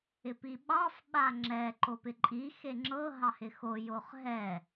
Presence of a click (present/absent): present